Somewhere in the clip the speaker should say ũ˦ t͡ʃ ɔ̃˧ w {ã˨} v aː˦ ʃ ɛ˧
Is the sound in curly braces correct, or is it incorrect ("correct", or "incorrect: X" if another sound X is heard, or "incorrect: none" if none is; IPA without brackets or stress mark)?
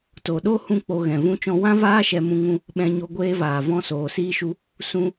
incorrect: ã˦